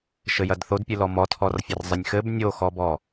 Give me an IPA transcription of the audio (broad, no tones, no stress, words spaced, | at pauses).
ʃɘjɐdθodpʲɨ lɔmɔtʰɔrfʲɐr zˤɘnʲxɘb nʲoxɔbɔ